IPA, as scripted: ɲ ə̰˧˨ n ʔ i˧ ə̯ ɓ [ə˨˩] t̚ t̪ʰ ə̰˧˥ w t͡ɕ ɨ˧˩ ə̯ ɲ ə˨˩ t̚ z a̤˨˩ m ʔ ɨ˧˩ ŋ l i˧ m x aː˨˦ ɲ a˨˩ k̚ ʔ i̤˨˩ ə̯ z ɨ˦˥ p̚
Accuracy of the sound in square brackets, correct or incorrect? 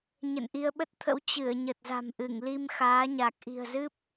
incorrect